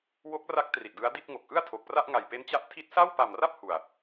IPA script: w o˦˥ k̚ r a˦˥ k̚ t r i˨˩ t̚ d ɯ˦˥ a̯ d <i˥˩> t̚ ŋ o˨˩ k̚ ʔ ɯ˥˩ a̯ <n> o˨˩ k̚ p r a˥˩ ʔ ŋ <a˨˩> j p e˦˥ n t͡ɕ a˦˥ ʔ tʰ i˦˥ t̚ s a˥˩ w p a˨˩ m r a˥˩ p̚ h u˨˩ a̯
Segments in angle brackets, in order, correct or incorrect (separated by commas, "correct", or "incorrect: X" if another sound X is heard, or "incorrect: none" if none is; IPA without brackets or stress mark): correct, incorrect: tʰ, correct